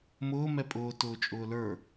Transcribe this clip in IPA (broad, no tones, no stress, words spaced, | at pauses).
mʊː mɛpʼʊː tʊːt͡ʃʼʊːlə˞